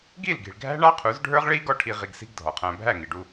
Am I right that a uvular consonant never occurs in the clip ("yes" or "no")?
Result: no